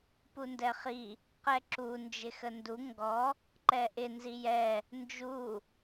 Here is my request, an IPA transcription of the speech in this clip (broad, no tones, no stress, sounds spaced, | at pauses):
p u n d ɛ χ i | q ɛ ǁ u n d͡ʒ ɪ x ə n d u ŋ ɡ ɔ | ǃ ɛ ʔ ɪ n z i j ɛ | n d͡ʒ u